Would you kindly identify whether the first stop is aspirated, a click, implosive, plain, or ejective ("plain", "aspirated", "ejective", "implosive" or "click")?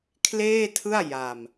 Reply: aspirated